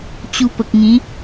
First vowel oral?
yes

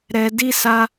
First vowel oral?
yes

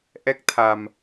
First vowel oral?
yes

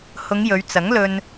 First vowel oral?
yes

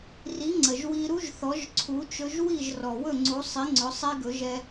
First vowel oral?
yes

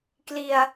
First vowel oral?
yes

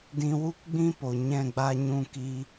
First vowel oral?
no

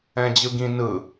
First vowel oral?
no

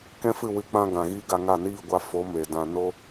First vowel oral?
no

